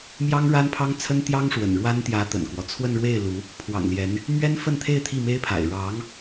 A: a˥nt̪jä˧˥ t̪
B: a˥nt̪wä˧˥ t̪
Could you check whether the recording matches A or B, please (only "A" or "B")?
A